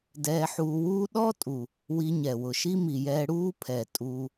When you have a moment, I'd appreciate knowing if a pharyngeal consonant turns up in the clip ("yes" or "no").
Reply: yes